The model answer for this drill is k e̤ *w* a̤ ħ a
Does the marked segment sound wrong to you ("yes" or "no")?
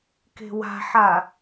no